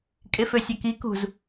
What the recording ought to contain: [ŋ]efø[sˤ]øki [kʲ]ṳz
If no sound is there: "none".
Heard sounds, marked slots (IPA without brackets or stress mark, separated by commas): kʼ, sʲ, k